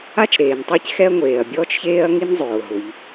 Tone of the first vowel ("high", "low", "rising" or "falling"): high